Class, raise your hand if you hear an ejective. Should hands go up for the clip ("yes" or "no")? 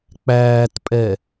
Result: yes